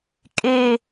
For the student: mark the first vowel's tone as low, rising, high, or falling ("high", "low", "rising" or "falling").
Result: falling